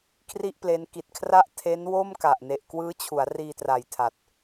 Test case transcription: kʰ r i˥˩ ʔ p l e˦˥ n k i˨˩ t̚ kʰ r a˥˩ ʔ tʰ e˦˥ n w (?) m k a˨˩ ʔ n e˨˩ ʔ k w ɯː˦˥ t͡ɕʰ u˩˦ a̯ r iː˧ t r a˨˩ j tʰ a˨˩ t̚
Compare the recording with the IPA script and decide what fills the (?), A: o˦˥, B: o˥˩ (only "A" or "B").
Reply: B